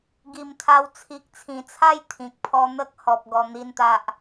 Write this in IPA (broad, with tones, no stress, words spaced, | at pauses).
ɡi˨˩mt̪ʰa˧w t͡sʰi˨k̚t͡sʰĩ˨˩t͡sʰa˥˧j t̪ʰĩ˨k̚pʰɔ˦ n̪ə˦k̚hɔ˨p̚ ɡɔ˧n̪i˥˧nt̪a˦ʔ